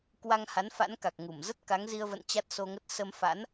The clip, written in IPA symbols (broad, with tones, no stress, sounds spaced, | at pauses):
k w a˧ ŋ h a˨˦ n f a̰˧˥ n k a˨˩ k̚ ŋ u˧˩ m z ə˦˥ t̚ k a˨˦ ŋ z i˧ ə̯ v ə̰˧˨ n t͡ɕ a˦˥ t̚ s o˧ ŋ ə˦˥ t̚ s ə˧ m f a̰˧˥ n